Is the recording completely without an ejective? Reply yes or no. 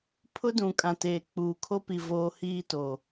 no